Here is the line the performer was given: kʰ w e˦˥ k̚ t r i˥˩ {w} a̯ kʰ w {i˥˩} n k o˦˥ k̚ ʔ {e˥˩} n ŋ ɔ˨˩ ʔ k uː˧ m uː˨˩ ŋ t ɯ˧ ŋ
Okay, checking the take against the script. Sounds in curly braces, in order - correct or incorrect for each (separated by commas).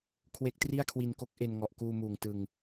incorrect, incorrect, incorrect